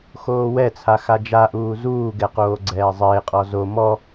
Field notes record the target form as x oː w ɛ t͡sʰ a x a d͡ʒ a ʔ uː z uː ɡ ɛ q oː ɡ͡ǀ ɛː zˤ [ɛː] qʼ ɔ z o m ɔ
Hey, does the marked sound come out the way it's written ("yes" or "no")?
no